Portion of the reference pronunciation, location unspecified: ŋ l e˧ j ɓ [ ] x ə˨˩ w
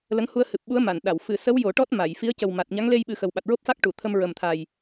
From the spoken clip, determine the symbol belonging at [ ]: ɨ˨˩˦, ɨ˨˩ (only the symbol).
ɨ˨˩˦